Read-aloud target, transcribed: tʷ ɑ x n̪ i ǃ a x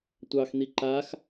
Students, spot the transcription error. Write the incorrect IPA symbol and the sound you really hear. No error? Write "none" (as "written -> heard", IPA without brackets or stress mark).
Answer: none